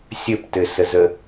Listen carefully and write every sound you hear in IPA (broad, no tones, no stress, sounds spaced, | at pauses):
sʲ ɘ p t ɘ s ə z ə